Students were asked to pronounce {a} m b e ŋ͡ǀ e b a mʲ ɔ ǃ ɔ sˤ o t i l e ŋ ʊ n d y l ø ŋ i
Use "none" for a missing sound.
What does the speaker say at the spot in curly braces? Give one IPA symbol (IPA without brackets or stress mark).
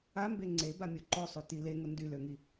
a